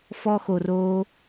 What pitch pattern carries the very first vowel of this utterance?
high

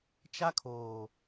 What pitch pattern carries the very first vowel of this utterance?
high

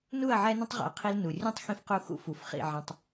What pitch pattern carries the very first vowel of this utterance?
falling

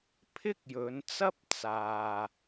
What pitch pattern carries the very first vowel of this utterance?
high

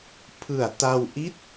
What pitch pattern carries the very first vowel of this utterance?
low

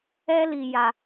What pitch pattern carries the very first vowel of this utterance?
high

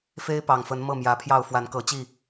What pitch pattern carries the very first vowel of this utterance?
high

